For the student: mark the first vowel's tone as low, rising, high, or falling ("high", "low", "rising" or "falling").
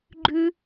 high